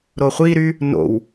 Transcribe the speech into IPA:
ɾ o χʷ i ɾ y | n o̰ w

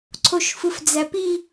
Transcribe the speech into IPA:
ǀʰ o ʃ f ɯ f d͡z æ p i

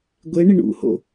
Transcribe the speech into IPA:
ɡʷ e ɳ i ɳ ṵ h o̰

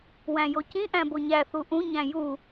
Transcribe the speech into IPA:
w æ̃ j o c ĩ ʔ æ̃ b o ɲ æ θ u ʔ ũ ɲ æ̃ j u

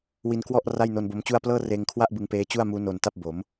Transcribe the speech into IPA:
w i˧ n k w ɔ˥˩ ʔ r a˥˩ j n o˧ n b o˦˥ m t͡ɕ u˥˩ a̯ p l ɤː˥˩ r eː˧ ŋ kʰ w a˥˩ ʔ b ɯ˧ ŋ p eː˦˥ t͡ɕ u˥˩ a̯ m uː˦˥ n o˧ n t a˥˩ p̚ b o˩˦ m

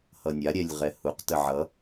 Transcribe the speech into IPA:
h ʌ nʲ a ɾʲ ɛ lʲ ʁ ɛ h u q t ə ʕ ʌ

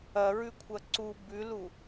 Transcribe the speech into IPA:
ɐ ɹ ʉ kʷʰ ɐ ǀ u b ʉ l u

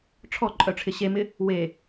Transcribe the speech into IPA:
ʈ͡ʂʰ ɔ ǃʼ œ ʈ͡ʂʰ ɪ ɕ e m ɪ | w e

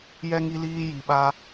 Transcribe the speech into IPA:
j ɛ˦ ŋ i˦ l iː˦ j i˧ ɓ a˦

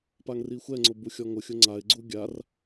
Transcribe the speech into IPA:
p a ŋ r i xʷ ɛ ŋ͡ǀ ʊ b u xʲ ɔ ŋ ʊ xʲ ʊ ŋ͡ǀ a ɪ̯ ɡ͡ǀ u ɡʲ a r

